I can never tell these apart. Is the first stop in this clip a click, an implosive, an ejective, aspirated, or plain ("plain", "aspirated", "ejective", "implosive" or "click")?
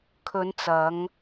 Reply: aspirated